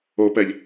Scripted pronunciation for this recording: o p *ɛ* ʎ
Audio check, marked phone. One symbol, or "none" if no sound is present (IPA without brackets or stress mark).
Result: ɛ